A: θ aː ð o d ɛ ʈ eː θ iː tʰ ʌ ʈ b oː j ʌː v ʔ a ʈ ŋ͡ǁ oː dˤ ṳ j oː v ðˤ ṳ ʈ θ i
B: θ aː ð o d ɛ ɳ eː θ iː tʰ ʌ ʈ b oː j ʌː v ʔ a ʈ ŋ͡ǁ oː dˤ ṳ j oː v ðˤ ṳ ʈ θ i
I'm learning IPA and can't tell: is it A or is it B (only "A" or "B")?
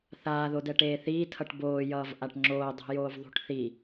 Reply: A